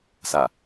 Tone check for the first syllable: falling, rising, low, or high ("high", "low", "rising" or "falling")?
low